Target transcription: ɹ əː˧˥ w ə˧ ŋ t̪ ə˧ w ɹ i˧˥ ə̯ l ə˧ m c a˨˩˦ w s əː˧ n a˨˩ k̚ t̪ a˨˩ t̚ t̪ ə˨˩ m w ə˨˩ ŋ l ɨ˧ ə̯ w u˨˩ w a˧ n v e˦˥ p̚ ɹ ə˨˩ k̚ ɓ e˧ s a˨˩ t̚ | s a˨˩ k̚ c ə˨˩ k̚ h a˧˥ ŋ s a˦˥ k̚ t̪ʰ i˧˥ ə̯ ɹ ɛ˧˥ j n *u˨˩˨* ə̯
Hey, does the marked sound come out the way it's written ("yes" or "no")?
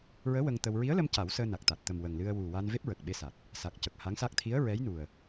no